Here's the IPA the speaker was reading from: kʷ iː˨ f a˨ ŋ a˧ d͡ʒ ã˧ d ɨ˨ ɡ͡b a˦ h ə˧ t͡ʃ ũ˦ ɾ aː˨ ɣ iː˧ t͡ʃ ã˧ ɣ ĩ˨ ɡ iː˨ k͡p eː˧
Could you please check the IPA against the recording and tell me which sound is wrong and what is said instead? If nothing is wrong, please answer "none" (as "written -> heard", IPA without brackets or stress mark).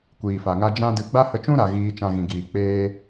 aː˨ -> a˨